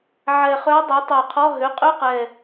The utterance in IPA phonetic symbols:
ʕ ɛ˨˩ χ œ˧˥ dˤ ø˩˥ tˤ o˨˩ qʰ ɔ˧˥˧ ɦ ø˩˥ qʼ ø˧˥˧ q ɛ˨˩

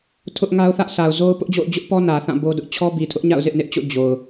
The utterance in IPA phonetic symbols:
tʰ ʊ˦ ʔ ŋ a˦ ʊ̯ θ ä˦ ʔ sʰ a˨ ʊ̯ z o˦ ʊ̯ p ʊ˦ ʔ d͡ʑ o̰˦˨ ʊ̯ d͡ʑ ʊ˦ ʔ p ɔ˦ n ä˨ θ ã˦˨ b o˦ d ʊ˦ ʔ t͡ɕʰ ɔ˦ b i˨ tʰ ʊ˦ ʔ ɲ a̰˦˨ ʊ̯ z ɪ˦ ʔ n ɪ˦ ʔ t͡ɕ o̰˦˨ d͡ʑ o˨ ʊ̯

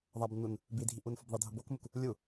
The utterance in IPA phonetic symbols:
ðˤ a b nː u n | b i dʱ i ʔ u n f ʊ b ðˤ e dʱ ʊ b o k m u k | lʲ u

